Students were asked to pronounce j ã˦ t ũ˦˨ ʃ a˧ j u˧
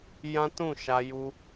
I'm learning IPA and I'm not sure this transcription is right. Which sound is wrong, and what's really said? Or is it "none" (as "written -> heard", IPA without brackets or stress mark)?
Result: none